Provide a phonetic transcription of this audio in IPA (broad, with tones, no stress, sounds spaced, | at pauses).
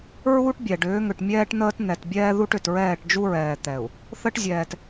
ɹ uː˦ ʈ bʲ ɛ˨ ɖ ʏː˨˦ ŋ ʏ˨ ʈ mʲ ɛː˦ ʈ n̪ əː˦ t n̪ ɛ˨ t bʲ ɛː˦ ð u˦ ʈ ʏ˨ t ɹ ɛː˦˨ ʈ d͡ʒ u˦ ɹ ɛː˨ t̪ ɛ˨ u̯ | θ ə˦ ʈ zʲ ɛː˨ t